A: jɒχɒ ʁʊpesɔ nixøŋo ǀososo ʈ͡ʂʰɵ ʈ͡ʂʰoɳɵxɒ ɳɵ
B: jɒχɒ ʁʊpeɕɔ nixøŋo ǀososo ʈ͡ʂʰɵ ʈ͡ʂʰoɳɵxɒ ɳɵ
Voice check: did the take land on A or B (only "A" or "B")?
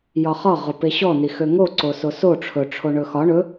B